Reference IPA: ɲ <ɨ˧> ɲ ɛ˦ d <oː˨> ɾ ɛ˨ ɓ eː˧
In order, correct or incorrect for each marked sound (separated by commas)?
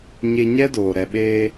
incorrect, correct